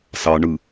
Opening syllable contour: low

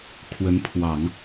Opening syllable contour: rising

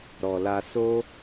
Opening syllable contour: low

